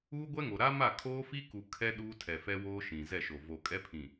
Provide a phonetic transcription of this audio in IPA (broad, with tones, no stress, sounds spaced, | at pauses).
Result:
uː˦ ɡʷ ɛ˦ ŋ o˨ ɾ a˦ m a˦˨ kʰ oː˦ f i˦ k u˨ kʰ ɛ˦ ɗ uː˦ tʰ ɛ˨ f ɛ˦ w oː˦ ʃ ĩ˨ z ɛ˦˨ ʃ o˨ v o˨ kʼ ɛ˦ pʰ ĩ˨